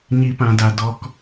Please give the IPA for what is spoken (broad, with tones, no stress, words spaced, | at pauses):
ɲi˧pã˧da˧dɔ˧k